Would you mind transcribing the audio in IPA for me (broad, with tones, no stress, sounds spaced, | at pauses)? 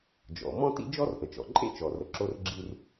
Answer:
d͡ʒ ɔ̰˩ m ɔ̃˥ t ḭ˥ d͡ʒ ɔ˥ r ʔ ə˩ t͡ʃ ɔ̰˩ ǃʼ ḛ˥ t͡ʃ ɔ˩ r ə˩ ǁ o˥ r ɡ͡ǁ i˥ r